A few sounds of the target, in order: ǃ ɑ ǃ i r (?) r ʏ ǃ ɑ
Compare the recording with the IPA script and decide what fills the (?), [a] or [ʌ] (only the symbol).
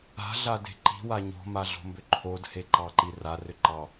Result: a